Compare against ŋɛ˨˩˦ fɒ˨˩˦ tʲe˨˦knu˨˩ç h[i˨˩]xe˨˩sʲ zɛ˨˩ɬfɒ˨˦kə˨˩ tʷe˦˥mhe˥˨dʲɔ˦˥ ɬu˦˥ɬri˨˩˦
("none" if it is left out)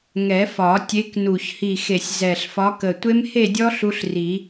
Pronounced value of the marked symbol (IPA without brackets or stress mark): i˨˩